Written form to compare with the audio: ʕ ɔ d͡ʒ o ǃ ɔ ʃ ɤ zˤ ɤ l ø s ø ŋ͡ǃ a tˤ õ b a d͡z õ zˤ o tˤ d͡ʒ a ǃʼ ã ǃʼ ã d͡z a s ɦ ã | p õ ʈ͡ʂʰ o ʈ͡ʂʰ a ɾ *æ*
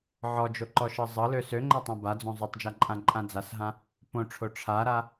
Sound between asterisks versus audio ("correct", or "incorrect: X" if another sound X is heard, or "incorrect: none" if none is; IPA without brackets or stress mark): incorrect: a